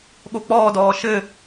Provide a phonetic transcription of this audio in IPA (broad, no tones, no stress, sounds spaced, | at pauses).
ɠ o k͡p ɔː d ɔː ʃ ɘ